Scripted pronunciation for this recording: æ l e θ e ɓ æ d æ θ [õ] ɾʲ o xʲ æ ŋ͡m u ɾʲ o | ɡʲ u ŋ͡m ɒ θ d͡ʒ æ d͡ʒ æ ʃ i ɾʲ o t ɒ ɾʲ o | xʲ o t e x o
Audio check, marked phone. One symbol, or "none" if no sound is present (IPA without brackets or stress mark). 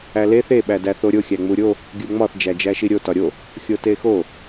o